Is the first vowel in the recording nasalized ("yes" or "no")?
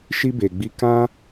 no